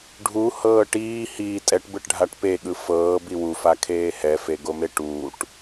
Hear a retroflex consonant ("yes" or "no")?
yes